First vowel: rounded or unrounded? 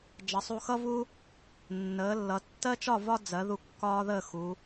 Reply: unrounded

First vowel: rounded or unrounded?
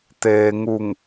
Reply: unrounded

